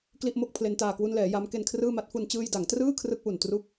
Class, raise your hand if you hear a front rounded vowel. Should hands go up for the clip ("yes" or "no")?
no